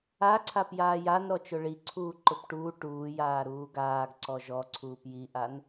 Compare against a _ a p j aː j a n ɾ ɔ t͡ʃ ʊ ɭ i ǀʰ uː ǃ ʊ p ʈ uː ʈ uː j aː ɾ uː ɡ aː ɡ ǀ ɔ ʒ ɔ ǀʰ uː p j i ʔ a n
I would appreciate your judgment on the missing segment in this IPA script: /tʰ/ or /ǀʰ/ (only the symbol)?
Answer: ǀʰ